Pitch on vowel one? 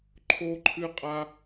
high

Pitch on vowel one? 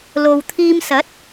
low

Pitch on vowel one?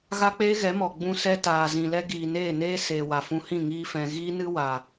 high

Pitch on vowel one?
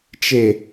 low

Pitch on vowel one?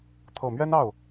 low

